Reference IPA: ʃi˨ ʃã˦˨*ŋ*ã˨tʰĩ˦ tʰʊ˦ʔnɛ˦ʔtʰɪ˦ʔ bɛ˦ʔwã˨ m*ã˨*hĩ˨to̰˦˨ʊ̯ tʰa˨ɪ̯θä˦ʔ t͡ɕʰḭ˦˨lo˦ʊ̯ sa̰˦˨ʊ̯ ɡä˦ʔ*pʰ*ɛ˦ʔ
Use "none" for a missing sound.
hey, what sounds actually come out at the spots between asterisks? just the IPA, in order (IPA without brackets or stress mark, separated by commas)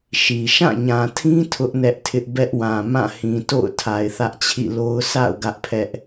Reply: ɲ, ã˦˨, pʰ